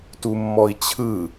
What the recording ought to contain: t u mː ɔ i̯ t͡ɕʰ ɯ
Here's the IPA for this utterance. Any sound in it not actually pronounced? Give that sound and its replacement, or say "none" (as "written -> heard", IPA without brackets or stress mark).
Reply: none